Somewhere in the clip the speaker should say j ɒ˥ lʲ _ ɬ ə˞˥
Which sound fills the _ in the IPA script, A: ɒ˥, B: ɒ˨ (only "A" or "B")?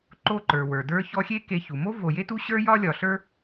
B